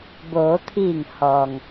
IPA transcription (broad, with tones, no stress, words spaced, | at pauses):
boː˩˧t̪ʰiː˧˩ŋ hɔː˩ŋ